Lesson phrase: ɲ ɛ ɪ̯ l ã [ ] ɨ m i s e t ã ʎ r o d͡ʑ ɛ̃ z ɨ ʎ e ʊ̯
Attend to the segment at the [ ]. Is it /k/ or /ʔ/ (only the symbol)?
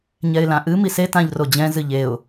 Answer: ʔ